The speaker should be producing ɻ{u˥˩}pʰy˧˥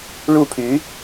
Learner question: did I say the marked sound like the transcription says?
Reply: yes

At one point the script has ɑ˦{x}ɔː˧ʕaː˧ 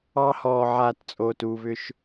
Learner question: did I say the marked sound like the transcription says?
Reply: no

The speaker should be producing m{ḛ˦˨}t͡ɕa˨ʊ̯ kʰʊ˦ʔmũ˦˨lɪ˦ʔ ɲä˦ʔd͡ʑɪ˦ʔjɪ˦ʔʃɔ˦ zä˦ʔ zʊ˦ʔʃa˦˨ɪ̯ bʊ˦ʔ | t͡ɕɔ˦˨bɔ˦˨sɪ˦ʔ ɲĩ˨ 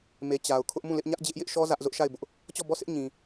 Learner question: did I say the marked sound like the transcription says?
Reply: no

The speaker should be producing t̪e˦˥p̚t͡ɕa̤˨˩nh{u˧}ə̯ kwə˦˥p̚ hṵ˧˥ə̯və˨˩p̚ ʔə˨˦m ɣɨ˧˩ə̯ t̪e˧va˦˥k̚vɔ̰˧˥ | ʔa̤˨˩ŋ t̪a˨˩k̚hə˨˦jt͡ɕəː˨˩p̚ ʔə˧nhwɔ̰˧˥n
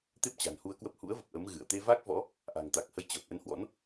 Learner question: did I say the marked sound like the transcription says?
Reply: yes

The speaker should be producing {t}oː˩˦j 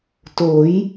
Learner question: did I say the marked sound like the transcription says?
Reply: yes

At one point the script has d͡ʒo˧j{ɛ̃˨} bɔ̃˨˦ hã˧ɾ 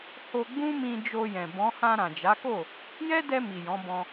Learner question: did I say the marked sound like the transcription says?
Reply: yes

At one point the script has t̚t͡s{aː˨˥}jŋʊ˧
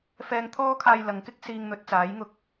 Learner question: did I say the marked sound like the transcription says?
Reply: yes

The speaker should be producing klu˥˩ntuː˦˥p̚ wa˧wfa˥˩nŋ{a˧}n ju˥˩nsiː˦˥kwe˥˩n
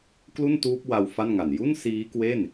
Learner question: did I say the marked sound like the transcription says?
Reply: no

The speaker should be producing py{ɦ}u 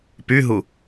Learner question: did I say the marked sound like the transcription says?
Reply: yes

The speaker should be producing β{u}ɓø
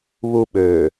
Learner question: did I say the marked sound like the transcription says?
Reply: yes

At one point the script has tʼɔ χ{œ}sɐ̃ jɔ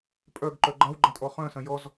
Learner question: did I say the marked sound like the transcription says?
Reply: no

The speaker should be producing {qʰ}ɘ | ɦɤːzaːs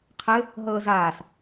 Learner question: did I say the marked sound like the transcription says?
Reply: yes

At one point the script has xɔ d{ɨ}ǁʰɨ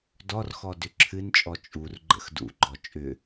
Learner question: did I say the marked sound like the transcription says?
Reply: no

